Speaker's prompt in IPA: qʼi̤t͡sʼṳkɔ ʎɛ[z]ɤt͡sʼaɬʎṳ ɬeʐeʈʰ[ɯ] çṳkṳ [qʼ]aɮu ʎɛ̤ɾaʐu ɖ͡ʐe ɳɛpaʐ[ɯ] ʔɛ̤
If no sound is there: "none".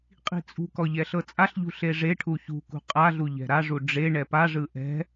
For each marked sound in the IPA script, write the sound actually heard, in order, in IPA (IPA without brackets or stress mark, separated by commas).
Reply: ɬ, u, qʼ, ɯ